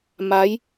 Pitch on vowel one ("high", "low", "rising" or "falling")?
rising